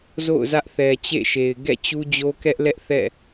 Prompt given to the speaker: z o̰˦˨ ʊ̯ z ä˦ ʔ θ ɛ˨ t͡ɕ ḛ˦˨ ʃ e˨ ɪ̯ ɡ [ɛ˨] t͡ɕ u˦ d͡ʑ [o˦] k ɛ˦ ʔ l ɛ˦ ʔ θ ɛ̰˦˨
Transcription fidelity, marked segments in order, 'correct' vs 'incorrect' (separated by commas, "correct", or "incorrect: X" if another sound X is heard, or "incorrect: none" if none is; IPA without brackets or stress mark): incorrect: ɛ̰˦˨, correct